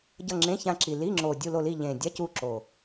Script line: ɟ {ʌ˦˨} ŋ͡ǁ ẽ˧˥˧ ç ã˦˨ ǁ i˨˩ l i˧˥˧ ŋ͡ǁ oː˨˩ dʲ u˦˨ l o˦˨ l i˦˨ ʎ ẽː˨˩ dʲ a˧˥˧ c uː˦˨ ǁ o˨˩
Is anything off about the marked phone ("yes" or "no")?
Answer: no